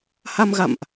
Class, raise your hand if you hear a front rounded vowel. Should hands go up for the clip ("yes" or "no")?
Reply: no